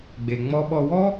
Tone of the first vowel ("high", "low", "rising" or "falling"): low